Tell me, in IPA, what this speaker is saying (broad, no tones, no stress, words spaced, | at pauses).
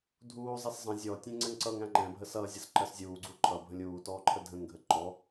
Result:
dʱuːzˤɛs zˤə̃ zʲɔtʲɛ̃ ŋ͡ǀɛŋǀʌŋæ̃ ŋ͡ǃɛ̃ bʱəsʌzʲʌs ǃɜszʲuːɡ͡ǀu ǃʰʌ bʱə̃lʲuːtɔː ǃʰədʱə̃ŋɡʱə ǃɔ